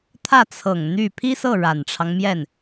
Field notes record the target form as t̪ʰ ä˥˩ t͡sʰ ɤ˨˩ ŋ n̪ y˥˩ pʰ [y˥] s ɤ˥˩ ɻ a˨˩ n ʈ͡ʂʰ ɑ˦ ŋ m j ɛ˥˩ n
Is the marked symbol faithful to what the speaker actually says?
no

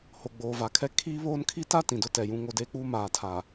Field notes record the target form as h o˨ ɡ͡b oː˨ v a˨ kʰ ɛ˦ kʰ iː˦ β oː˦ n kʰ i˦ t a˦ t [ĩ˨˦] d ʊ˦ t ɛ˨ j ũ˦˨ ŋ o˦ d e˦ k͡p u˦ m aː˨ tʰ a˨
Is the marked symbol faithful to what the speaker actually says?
no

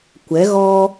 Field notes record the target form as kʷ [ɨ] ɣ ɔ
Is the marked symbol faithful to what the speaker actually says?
no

